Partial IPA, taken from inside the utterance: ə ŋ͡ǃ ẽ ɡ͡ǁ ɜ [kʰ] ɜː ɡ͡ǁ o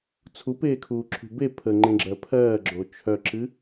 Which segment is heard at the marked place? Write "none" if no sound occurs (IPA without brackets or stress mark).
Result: pʰ